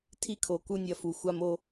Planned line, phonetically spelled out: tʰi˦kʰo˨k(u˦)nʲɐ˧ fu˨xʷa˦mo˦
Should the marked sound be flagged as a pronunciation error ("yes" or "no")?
no